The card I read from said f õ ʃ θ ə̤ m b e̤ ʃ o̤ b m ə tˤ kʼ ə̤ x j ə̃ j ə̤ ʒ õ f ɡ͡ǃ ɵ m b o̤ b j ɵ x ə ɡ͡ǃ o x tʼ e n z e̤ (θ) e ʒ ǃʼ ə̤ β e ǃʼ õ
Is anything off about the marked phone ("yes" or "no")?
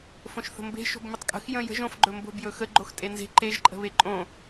yes